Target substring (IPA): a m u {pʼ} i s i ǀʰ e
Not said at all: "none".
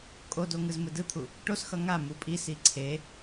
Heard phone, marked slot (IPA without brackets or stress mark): pʼ